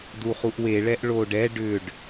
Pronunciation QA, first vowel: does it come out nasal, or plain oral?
oral